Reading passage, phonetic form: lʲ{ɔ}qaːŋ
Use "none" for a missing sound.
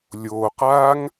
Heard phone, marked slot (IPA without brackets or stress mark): o